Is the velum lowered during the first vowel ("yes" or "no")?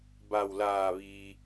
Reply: no